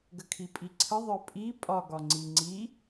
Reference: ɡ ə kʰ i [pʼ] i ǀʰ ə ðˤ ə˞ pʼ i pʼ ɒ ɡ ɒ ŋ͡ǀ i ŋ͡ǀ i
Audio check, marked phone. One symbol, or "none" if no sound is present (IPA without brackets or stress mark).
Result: pʼ